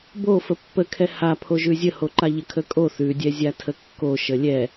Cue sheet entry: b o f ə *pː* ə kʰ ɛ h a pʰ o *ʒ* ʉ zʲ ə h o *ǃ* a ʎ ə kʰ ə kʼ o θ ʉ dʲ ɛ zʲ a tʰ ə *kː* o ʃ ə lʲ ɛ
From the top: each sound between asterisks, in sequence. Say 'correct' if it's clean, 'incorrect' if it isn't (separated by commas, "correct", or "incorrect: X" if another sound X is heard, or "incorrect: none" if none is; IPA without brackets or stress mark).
correct, correct, correct, correct